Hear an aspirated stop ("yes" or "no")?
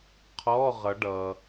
yes